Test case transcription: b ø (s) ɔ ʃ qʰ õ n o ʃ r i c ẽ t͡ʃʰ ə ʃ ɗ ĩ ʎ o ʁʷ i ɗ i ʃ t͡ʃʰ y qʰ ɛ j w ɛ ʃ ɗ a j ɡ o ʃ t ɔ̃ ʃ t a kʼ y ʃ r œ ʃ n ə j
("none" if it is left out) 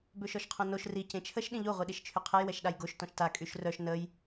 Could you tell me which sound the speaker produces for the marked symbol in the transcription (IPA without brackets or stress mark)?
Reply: ʃ